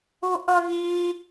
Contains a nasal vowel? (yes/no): yes